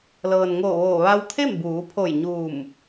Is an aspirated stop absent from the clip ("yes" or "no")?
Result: no